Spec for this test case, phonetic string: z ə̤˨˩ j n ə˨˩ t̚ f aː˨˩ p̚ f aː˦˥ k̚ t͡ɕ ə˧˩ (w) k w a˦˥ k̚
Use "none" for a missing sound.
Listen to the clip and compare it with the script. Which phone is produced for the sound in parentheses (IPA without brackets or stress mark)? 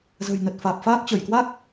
j